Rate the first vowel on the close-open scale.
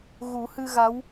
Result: close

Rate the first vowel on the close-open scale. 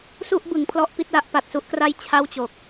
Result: close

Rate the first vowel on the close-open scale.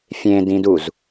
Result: mid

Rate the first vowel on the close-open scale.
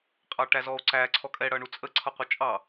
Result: open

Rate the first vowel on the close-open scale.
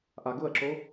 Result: open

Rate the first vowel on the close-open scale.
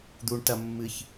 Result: close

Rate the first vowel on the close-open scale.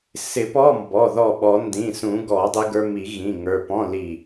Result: close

